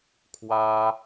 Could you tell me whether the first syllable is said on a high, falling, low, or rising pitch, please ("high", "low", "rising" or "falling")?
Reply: high